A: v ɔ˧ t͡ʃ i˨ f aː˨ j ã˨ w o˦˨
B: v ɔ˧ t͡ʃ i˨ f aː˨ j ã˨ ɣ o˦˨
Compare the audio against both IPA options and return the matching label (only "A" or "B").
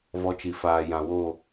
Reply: A